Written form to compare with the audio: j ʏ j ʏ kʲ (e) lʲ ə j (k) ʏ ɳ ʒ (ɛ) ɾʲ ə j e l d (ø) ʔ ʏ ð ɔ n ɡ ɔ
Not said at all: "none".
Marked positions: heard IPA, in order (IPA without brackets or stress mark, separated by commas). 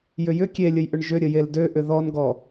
e, ʔ, ʏ, ø